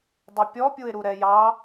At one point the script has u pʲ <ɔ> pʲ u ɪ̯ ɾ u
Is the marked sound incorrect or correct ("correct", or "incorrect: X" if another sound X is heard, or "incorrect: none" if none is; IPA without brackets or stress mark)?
correct